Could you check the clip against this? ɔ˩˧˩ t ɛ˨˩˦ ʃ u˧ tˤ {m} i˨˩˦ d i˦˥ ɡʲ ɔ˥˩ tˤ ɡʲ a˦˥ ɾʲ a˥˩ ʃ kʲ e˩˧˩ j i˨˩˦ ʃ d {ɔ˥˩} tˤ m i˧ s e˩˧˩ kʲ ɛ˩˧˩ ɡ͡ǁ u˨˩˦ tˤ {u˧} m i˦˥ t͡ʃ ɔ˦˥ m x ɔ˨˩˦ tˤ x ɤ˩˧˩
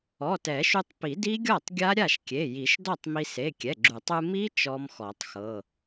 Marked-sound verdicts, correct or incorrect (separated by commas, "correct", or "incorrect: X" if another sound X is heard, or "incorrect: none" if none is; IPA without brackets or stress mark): incorrect: p, correct, correct